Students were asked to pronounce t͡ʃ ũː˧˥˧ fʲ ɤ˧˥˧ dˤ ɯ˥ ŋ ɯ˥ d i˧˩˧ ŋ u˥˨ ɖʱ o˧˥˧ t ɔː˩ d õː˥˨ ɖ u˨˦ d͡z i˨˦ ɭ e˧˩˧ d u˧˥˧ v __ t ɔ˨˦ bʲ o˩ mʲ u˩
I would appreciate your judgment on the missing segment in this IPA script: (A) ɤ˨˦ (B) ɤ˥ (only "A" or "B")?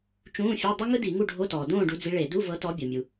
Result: A